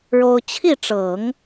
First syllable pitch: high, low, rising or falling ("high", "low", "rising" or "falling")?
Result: high